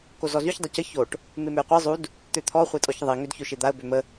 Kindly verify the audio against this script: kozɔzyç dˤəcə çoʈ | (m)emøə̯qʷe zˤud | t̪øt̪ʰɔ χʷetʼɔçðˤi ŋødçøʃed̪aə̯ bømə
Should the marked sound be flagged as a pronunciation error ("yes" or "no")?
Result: no